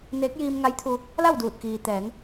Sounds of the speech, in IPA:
n eː˧˥ k̚ j iː˧ m ŋ a˧˥ j t̪ʰ u˧ | l a˥˨ w d uː˧˩ t̚ k iː˩ t̪ ɛː˩˧ ŋ

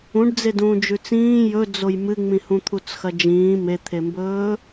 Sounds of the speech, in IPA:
ũ ɖ d͡z e d ũː d͡ʒ ʉ t͡s ĩː j ɵ d͡z o j m ɨ ŋ͡m ĩ h ũ t̪ʰ u t͡s x ɐ d͡ʒ ĩː m e t̪ʰ e m b ɵː

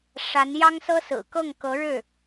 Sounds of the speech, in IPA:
ʂ a˧˥ n j ɑ˥ ŋ s ɤ˥ s ɹ̩˨˩ k ɤ˥˩ ŋ k ɤ˧˥ ɻ ɻ̩˥˩

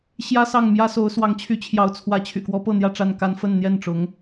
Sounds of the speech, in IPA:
ɕ j ä˥ s ɑ˥˩ ŋ m j ä˥ s o˧˥ ʊ̯ s w ɑ˧˥ ŋ t͡ɕʰ y˧˥ t͡ɕʰ j ɑ˧˥ ʊ̯ t͡sʰ w ä˧˥ t͡ɕʰ y̰˨˩ k w ɔ˧˥ p ɤ˥˧ n̪ j ä˥˧ ʈ͡ʂ a˥˩ n k a˥ n f ə˥˧ n n̪ j ɛ˥˩ n ʈ͡ʂ ʊ˧˥ ŋ

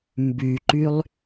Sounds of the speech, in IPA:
m b y ǃ y lˠ

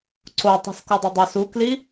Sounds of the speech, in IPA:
ǀ o tˤ i̤ s k o dˤ e dˤ ø s u k l i

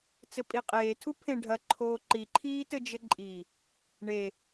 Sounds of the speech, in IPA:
t͡s ɘ pʼ i qʼ eː tʰ u pʰ ẽ ɖʱ ɐ ǃʰ oː ǃ i ǃʰ iː t ɘ d͡ʒ ɘ ǃʼ i | ɳ e

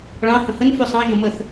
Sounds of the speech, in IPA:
ɭ ɑ̃ h ə̃ h ə n f ʉ sˤ ɑ̃ ʒ ə̃ m ə θ

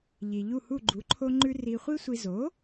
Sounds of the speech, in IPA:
ʎ i˩ ʎ u˥˩ h u˥˩ ɡ͡ǃ u˩˥ ǃʰ o˧ ŋ͡ǃ ʉ˧ r i˧ χʷ i˥ sʷ i˧ z o˩˥

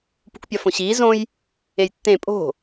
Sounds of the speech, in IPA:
p ṳ k pʲ ɒ f õ ɕ iː z õ j | e j tː ẽ pʼ o̤

